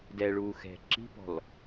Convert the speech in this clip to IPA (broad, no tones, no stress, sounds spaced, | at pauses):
d ɛ ɭ uː x ɛ̤ ǁ i̤ p ɔ̤ l